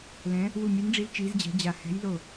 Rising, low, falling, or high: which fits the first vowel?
rising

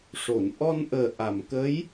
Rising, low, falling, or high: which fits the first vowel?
low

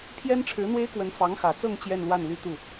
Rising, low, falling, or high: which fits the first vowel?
high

